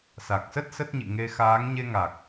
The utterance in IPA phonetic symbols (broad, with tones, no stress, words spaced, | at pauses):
sa˨˩k̚sə˦˥t̚ sə˦˥t̚ɲḭ˧˨ŋe˧ xaː˨˦ŋɲe˧ŋa˨˩k̚